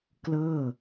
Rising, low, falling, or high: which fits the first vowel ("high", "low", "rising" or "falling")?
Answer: falling